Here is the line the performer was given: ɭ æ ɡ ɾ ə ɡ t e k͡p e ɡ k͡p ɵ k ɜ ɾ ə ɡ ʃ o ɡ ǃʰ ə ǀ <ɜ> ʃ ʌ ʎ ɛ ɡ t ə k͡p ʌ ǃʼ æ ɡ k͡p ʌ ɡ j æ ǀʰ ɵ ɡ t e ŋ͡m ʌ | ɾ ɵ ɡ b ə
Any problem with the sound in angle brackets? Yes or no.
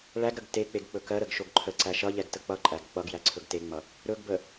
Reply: yes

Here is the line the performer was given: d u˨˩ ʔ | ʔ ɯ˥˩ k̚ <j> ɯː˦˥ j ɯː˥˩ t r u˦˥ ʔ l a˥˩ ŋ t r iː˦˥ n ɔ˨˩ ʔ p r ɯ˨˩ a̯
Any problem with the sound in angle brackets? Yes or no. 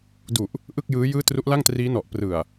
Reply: no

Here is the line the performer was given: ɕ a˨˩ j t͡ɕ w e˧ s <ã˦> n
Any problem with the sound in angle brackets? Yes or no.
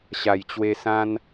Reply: no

